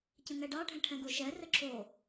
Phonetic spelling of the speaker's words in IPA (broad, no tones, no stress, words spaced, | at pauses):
cə̃ŋɛɖɑ ɖʱɛ̃ʈʰɛ̃ɡoʃɛ rəǁʰo